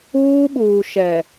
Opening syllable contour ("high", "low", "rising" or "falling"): high